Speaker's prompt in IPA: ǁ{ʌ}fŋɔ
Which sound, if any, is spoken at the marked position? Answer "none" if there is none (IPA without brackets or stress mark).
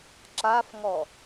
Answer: a